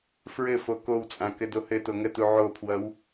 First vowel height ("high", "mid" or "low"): mid